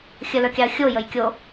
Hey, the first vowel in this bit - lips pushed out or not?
no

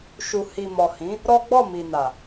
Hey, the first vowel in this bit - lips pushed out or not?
yes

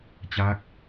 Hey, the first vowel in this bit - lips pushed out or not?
no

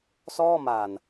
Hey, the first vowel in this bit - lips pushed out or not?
yes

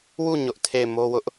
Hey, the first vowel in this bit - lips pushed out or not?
yes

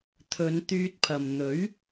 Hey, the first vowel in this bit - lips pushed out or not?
yes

